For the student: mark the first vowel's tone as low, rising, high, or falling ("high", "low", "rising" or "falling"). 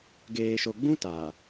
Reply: low